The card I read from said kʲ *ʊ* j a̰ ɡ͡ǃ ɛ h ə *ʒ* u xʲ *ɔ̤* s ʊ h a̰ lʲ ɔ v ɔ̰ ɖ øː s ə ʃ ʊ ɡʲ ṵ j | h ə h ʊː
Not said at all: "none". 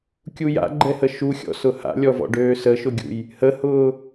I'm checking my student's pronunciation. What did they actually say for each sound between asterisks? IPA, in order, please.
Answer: u, ʃ, ɔ̰

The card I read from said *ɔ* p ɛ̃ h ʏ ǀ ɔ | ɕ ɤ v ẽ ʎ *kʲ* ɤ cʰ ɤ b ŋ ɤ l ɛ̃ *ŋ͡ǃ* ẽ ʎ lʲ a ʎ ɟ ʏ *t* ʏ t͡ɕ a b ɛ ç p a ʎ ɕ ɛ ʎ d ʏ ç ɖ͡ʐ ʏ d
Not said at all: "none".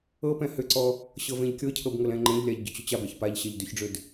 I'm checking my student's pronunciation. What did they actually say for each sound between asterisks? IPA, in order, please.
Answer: ɤ, kʲ, ŋ͡ǃ, t͡ɕ

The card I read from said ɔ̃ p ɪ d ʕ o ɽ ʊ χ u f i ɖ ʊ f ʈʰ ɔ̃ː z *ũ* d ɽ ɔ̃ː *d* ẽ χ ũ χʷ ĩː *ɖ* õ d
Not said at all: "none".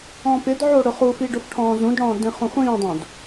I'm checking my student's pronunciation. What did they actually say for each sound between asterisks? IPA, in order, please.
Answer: ũ, d, dˤ

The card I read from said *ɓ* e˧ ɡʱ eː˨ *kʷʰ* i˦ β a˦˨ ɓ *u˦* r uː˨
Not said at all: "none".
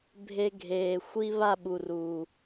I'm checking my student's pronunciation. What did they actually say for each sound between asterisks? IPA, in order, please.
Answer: bʱ, xʷ, u˨

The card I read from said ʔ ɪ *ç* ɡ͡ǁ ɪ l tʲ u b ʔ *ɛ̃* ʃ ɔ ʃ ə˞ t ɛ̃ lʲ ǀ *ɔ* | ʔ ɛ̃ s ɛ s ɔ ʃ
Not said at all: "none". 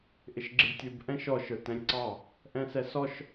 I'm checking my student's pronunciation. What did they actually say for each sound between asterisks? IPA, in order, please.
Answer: ʃ, ɛ̃, ɑ

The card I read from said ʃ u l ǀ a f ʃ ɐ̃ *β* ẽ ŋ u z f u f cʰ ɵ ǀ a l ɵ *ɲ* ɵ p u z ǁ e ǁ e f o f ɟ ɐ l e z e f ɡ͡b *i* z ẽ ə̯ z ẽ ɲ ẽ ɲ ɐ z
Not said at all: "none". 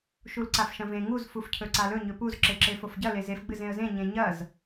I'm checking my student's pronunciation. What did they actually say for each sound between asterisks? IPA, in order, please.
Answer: v, ɲ, ɨ

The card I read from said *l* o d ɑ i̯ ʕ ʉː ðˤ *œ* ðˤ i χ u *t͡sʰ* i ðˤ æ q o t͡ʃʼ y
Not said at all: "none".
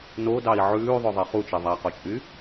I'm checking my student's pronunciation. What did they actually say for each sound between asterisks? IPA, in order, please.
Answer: n, œ, t͡ʃ

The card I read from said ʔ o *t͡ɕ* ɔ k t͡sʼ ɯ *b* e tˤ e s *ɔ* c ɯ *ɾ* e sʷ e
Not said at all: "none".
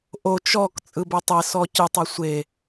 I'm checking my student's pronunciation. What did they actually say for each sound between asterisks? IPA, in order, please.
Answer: t͡ʃ, b, ɔ, tˤ

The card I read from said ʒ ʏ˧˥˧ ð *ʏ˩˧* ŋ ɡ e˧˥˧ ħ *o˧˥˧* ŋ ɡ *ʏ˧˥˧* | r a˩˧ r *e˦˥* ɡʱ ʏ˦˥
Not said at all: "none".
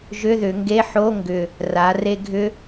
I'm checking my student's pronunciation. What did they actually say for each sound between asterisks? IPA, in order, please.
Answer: ʏ˩˧, o˧˥˧, ʏ˨˩, e˧

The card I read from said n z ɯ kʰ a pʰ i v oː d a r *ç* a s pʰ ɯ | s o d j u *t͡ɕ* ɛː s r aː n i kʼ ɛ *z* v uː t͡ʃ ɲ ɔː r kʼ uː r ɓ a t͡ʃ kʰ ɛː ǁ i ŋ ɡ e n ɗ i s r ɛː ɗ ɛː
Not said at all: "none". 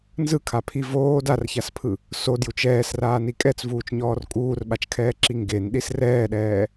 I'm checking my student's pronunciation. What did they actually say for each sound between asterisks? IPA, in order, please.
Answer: ç, t͡ʃ, t͡s

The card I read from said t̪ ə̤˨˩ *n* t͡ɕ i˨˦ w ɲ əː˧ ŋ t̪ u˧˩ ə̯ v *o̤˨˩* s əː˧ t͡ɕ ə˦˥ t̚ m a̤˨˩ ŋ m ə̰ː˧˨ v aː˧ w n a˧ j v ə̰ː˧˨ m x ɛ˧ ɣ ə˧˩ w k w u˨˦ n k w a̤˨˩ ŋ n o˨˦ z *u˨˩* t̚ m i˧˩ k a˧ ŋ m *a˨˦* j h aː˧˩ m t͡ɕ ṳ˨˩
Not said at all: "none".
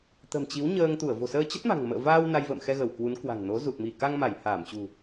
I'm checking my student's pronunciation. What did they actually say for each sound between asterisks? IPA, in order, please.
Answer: m, o̤˨˩, u˨˩, a˧˩

